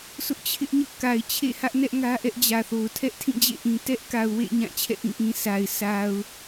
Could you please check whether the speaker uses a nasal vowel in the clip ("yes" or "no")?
yes